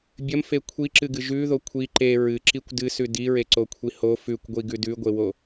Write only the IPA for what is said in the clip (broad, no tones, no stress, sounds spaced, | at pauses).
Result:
bʲ ɐ m f e kʷʰ i ǁ ɨ ɡ ɨ ʒ ʉ ð o kʷʰ i ǃ e ɹ ɨ ǁ i kʷ d ɨ s ʉ d i ɹ e ǀ o kʷʰ i h o f ʉ kʷ ɡʷ i ɡ ʉ d ʉ ɡʷ e w o